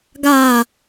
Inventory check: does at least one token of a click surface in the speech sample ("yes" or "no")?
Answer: no